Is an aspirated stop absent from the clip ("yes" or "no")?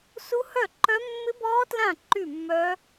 yes